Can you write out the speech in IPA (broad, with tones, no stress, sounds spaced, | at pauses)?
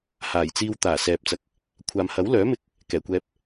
h aː˨˩ j t͡s iː˧ w t̪ aː˨˩ s ɛː˨ p̚ t͡s ɐ˨ k̚ | kʷʰ aː˨ m h ɐ˨˥ w l œː˨˥ m ɪ˧ k̚ | k ɛː˨˩ kʷ ɛː˧ p̚